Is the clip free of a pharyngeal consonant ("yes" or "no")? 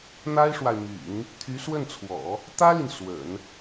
yes